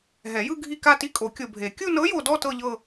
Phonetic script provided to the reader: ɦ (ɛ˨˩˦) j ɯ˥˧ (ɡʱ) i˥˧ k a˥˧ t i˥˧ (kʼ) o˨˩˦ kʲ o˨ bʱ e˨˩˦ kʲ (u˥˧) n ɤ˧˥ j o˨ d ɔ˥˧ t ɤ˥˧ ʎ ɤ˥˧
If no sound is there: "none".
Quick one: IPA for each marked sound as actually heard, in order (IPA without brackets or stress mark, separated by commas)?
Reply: ɛ˨˩˦, ɡʱ, kʼ, u˥˧